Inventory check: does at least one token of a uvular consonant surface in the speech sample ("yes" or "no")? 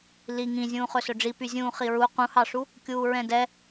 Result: yes